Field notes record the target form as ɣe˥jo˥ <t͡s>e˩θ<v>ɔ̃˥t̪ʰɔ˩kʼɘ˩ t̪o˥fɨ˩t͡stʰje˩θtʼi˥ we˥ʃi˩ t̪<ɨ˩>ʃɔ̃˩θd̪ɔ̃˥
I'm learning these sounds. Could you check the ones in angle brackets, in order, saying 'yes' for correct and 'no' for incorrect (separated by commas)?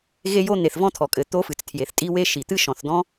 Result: no, yes, no